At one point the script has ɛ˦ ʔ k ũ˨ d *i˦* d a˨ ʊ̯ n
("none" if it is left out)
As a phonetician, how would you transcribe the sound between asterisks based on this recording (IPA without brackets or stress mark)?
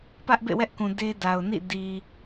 e˦